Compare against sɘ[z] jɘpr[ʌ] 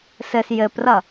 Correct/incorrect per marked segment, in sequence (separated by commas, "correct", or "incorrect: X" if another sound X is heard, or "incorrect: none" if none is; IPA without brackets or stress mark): incorrect: s, correct